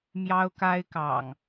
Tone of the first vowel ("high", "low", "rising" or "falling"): high